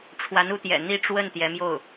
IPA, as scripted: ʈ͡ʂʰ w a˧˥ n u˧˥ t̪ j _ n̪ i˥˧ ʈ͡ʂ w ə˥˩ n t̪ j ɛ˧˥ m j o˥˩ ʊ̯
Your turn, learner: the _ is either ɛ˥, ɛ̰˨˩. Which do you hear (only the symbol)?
ɛ̰˨˩